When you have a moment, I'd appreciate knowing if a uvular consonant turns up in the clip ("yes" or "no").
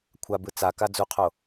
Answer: yes